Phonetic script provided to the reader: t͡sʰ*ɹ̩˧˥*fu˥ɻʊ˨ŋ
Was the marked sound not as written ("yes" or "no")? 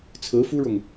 no